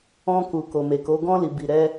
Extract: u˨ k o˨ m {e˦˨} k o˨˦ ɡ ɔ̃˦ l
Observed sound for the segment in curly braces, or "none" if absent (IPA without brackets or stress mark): e˨